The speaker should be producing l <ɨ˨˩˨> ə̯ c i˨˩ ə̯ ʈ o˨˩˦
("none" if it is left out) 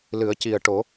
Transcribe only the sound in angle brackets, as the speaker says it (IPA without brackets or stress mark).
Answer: ɨ˨˩˦